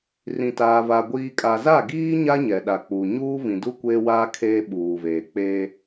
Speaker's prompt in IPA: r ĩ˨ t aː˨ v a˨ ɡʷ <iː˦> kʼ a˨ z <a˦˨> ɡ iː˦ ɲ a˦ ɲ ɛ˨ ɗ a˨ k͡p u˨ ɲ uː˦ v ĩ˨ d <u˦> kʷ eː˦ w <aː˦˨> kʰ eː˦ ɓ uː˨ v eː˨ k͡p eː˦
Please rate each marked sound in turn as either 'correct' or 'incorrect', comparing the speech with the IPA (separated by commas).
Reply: incorrect, correct, correct, incorrect